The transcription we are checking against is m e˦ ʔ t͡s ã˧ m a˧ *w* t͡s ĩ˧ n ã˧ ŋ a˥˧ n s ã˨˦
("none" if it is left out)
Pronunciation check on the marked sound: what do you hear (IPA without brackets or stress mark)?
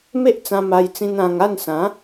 j